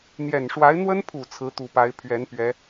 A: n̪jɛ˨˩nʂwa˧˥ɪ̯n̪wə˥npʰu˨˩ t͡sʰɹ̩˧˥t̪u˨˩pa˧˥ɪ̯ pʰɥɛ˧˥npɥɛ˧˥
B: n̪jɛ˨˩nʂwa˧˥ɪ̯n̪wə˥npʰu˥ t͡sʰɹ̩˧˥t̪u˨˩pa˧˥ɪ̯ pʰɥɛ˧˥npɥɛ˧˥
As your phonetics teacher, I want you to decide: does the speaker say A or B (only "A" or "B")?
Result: A